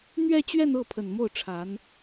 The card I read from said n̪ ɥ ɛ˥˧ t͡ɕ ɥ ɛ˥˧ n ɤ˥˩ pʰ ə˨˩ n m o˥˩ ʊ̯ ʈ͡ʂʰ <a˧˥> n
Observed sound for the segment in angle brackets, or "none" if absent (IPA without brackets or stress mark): a˧˥